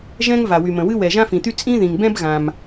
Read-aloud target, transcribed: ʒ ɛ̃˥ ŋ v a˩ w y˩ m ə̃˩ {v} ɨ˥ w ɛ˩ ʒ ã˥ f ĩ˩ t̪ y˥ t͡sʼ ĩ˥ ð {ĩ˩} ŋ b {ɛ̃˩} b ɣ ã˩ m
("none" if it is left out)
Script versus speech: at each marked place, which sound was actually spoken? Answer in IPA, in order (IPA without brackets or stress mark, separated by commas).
w, ĩ˩, ɛ̃˥